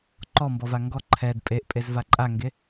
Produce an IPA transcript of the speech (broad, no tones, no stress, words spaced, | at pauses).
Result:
ǃɔmbɔva ŋɡɔ ǃʰɛd pʼeʔpʼezva ǃʼaŋɡe